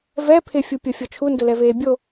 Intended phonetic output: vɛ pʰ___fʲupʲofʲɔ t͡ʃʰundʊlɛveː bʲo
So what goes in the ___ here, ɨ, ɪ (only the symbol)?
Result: ɪ